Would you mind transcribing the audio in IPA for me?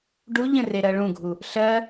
ɖuʎə̃ reɾɜɭũɡʱu | ɬɜ

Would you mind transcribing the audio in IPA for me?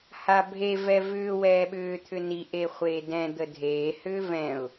habʱe vɛvʏː wɛːɓʏː t̪ʰʏni ʔeχʷeːdɛ̃ d̪ədʱeː hʏːvɛ̃ʊ̯

